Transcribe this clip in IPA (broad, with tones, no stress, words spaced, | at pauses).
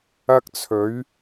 ɐ˧k̚t͡sʰɵ˨˧ɥ